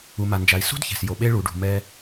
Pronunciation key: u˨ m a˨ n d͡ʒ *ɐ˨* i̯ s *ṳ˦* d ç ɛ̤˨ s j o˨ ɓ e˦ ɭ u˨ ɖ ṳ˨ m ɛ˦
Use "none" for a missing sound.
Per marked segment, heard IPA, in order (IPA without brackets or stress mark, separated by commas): a˨, ṳ˦